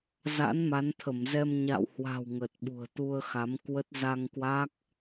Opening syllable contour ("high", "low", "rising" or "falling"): rising